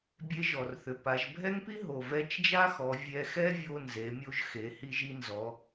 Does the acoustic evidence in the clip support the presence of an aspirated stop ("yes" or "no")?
no